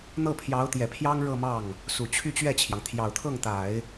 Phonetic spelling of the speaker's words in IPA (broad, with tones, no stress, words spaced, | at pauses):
n̪ɤ˥˩pʰjɑ˧˥ʊ̯t̪jɛ˨˩pʰjɑ˥ŋ ɻɤ˥˧mɑ˥˩ŋ | su˨˩t͡ɕʰy˥˧t͡ɕɥɛ˥˩t͡ɕʰjɑ˩ŋ t̪ʰjɑ˨˩ʊ̯t̪ʰɤ˥˩ŋ t̪a˨˩˦ɪ̯